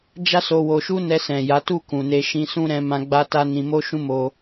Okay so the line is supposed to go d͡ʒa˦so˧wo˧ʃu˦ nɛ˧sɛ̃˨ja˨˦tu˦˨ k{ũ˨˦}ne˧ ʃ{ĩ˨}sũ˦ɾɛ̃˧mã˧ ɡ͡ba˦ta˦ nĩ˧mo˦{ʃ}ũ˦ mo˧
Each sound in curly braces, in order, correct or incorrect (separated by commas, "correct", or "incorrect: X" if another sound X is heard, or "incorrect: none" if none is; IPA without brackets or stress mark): incorrect: ũ˨, incorrect: ĩ˧, correct